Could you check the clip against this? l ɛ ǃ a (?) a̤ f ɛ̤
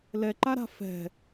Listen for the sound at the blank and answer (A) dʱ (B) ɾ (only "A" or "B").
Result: B